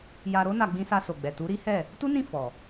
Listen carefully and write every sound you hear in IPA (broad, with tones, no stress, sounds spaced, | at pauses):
j a˧ ɾ o˦ n a˧ ɡ͡b ĩ˧ s a˧ s o˨ ɡ͡b ɛ˨ t u˨˦ ɾ i˦ h ɛ˦˨ | t u˦ n ĩ˦˨ f ɔ˨